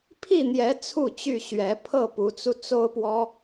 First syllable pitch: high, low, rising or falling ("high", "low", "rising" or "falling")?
falling